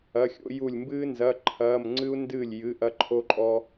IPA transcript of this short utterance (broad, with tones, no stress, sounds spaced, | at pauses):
ɐ˧˥˧ xʲ o̰˥ j u˥˨ lʲ m b ɨː˥ n z ɐ˧˥˧ ǃʰ ɐː˧˥˧ m ŋ͡ǀ ɨ˥ u̯ n d ɨː˥˨ lʲ j ɨ˧˥˧ ʔ ɐ˥ ǃʰ o˥ ǃʼ ɔ˥